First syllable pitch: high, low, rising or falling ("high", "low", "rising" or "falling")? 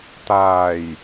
low